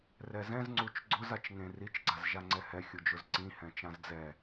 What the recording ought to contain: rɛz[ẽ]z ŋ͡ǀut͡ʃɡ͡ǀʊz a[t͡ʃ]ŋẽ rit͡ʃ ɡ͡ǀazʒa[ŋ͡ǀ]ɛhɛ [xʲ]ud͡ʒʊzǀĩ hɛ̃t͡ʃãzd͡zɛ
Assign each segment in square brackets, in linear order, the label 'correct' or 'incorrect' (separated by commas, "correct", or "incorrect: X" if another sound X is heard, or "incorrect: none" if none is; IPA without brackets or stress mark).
incorrect: ɛ̃, correct, correct, correct